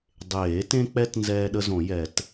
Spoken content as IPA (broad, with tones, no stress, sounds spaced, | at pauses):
dˤ eː˨˩˦ t ẽ˦ k͡p ɛ˦ t n z ɛː˦ ɗ ə˦ z õ˨˩˦ j ɛ˨˩˦ t